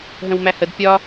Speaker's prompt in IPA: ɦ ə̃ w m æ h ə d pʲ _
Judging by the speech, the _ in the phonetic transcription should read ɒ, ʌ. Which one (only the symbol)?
ɒ